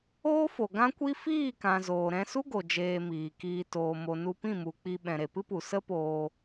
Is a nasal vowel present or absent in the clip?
present